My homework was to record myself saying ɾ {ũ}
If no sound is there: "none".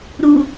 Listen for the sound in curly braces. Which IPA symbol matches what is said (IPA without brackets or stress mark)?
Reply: u